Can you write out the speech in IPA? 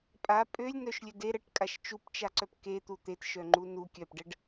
pʼ a pʼ ø lʲ n œ ʃ lʲ ø d e ɾ ə ʈ kʼ a ʃ t͡ʃ u p t͡ʃ a ǀ œ p k e t̪ u t̪ e t ʃ œ ŋ͡ǃ u n u kʲ œ p ɖ ə ɖ

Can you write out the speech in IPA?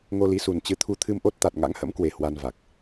ŋ o˧ l i˨˦ s u˨˩ n t͡ɕ ɨ˨˦ t̪ʰ u˧ t̪ʰ ɨ˧ m ʔ o˦˥ t̚ t̪ a˨˩ t̚ ŋ a̰˧˥ ŋ h ə̰˧˥ m k w e˨˩ h w a˧ n v a˨˩ k̚

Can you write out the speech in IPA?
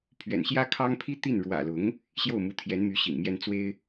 pʰ ɥ ɛ̰˨˩ n ɕ j ä˥ kʰ ɑ˥ ŋ pʰ i˥ t̪ i˥˩ n ɻ w ä̰˨˩ l ʊ˧˥ ŋ | ɕ j o˥˩ ʊ̯ m u˧˥ t̪ʰ j ɛ˧˥ n m y˧˥ ɕ ḭ˨˩ ŋ m j ɛ˥ n t͡s w e˥ ɪ̯

